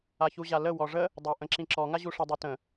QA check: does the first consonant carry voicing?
no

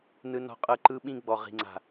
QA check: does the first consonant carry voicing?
yes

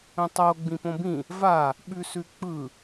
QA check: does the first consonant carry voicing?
no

